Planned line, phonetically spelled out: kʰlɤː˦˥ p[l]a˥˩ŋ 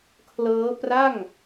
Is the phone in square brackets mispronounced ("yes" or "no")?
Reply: yes